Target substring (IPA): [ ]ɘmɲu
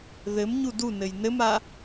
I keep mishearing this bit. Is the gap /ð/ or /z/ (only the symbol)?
ð